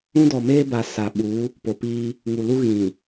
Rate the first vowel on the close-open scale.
close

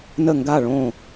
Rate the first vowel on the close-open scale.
mid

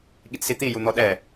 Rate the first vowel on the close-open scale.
close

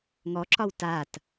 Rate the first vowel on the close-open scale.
mid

